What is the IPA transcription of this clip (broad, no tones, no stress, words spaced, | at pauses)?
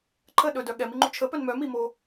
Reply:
ǃʰə ɗɵdœ ɠɛmiŋ͡ǃu t͡ʃʰəpœn mœmimo